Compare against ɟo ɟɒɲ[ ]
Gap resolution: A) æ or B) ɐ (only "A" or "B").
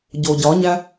A